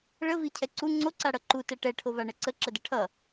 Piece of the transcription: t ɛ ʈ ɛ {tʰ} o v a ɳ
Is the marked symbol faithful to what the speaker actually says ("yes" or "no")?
no